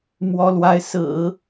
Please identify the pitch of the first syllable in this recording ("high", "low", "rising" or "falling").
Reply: high